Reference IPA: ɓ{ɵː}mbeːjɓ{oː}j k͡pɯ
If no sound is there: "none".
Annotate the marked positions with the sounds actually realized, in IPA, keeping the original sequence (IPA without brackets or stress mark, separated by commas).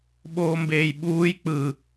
oː, uː